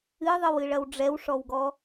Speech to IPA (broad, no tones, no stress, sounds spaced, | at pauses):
ɨ ðˤ ɨ w ɨ ɭ ɐ w ɖ͡ʐ ɛ w ʂ ɔ w ɡ ɔ